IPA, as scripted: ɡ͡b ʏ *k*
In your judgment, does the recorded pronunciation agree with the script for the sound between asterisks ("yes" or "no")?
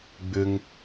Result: no